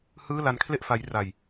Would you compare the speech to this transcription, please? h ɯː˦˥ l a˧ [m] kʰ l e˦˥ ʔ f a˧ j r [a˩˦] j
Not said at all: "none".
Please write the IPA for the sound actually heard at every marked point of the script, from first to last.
n, a˧

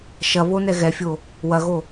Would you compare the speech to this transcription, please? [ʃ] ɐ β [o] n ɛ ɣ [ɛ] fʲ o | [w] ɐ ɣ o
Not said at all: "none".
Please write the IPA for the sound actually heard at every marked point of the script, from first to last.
ʃ, o, ɛ, w

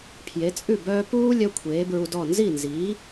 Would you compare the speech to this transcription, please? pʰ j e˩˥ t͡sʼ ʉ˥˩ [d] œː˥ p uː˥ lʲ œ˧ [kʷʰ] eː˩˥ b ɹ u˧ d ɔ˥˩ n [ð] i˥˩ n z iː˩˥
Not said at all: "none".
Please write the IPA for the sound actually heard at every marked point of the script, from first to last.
b, kʷʰ, z

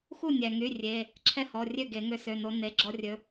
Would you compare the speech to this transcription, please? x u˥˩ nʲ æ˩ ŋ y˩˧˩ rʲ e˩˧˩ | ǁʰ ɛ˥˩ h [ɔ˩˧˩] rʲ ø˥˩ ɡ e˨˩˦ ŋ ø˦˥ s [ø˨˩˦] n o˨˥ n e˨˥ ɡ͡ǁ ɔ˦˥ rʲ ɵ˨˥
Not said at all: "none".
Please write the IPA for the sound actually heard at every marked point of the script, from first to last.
ɔ˩˧˩, ø˩˧˩

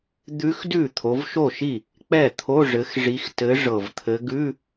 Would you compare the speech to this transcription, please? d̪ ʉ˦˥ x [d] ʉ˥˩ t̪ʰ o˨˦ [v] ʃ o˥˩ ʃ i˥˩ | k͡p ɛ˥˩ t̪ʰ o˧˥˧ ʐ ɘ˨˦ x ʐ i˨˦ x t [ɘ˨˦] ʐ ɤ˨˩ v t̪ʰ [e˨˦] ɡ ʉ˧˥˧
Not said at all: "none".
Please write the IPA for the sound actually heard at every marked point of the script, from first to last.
d, v, ɘ˨˦, ɘ˨˦

